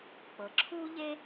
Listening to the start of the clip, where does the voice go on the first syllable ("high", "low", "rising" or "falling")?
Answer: low